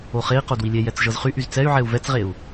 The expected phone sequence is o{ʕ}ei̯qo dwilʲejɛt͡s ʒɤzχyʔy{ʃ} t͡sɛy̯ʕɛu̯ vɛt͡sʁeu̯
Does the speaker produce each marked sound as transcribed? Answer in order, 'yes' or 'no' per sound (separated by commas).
no, no